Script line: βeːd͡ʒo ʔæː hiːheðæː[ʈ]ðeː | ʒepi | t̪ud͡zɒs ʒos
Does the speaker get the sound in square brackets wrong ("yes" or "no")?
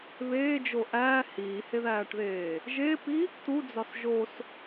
no